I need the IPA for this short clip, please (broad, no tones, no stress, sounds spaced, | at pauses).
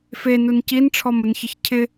f e n u n c i n ʈ͡ʂʰ ɔ m ʊ n ç ɪ ç cʰ ɪ